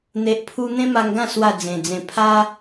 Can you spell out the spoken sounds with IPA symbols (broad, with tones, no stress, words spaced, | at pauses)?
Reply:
n̪e˨ʔpʰu˧ n̪ẽ˦ma˧ŋɡã˥˧ swa˥˧d͡zẽ˨˩d͡zẽ˧ pʰa˦